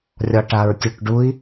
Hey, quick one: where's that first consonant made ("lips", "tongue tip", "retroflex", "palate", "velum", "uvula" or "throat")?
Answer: tongue tip